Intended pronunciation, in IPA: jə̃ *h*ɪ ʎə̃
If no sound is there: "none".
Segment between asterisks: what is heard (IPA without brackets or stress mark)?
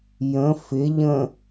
f